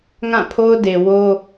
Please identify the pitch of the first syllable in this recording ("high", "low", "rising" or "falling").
falling